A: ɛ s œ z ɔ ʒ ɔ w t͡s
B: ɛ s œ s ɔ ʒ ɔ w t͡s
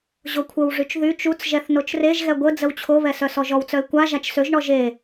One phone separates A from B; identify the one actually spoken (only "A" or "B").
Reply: B